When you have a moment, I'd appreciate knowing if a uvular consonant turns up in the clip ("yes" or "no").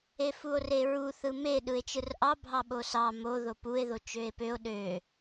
no